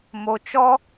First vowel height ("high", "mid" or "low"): mid